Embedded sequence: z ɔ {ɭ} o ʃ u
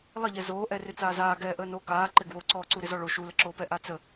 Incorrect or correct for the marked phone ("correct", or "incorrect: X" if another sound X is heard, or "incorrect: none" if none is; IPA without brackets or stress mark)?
correct